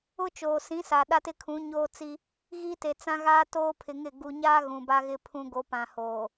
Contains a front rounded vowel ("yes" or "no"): no